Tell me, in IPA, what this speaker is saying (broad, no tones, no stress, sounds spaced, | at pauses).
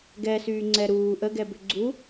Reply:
ɡ ɛ s yː ŋ͡ǀ ɛ ɾ uː ʔ ə ɡ ɛ b ʏ ɡ͡ǀ u